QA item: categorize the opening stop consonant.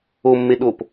implosive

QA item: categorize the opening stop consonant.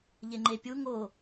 click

